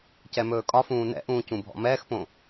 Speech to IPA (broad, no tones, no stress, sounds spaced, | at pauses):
c ɛ m ɵː kʼ ɒ f ũː n ɛ̰ ʔ ũː c ũ bʱ ɔ̰ m ɛː x p õ